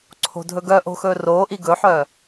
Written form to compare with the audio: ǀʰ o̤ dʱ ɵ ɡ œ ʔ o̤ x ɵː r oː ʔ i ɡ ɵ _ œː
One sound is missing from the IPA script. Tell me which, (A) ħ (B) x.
A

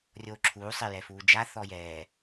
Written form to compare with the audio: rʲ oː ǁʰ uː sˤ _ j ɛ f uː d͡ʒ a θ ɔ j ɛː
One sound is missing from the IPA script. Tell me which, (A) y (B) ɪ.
B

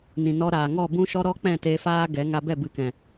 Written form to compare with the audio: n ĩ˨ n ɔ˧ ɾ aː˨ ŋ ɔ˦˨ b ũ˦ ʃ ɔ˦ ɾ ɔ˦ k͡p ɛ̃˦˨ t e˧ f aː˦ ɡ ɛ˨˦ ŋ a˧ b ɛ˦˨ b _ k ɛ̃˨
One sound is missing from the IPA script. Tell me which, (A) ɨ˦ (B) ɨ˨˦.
B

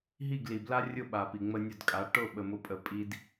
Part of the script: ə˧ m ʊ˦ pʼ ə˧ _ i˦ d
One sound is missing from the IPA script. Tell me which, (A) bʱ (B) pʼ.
B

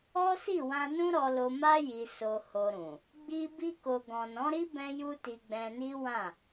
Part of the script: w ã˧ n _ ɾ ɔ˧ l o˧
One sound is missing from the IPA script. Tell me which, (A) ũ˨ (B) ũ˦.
B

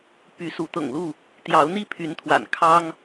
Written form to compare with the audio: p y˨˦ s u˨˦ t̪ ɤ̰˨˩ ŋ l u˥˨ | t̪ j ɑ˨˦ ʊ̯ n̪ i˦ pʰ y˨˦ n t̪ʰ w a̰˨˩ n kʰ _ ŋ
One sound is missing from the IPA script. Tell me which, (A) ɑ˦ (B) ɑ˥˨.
A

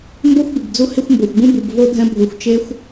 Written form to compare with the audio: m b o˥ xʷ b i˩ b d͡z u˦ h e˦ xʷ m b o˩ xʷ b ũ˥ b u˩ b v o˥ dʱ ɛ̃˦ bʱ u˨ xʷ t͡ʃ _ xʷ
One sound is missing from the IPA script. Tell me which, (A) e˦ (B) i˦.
A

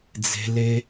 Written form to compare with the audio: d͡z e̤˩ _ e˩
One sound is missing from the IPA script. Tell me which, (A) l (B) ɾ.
A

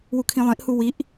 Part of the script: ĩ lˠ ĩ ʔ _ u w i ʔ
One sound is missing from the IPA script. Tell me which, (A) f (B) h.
B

